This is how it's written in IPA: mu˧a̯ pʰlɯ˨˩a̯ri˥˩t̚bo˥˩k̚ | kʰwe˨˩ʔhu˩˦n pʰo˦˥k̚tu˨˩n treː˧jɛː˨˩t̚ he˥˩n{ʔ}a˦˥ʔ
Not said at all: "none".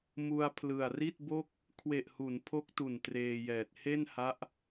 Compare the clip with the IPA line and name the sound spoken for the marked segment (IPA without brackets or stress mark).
h